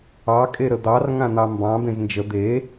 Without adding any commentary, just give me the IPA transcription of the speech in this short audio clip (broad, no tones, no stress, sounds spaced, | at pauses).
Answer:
ɑ kʼ e ɾ ə d̪ ɑ r ŋ ã n̪ ɑ m b ɑ̃ b ẽ z n d͡ʒ ə d̪ e